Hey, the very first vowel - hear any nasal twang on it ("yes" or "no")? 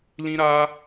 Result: yes